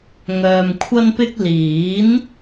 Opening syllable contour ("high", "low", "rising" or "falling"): low